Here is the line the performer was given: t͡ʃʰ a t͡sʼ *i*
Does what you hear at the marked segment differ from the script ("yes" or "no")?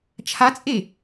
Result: yes